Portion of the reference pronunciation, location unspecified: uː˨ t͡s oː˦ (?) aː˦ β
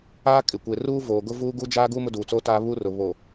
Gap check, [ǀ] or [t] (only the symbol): t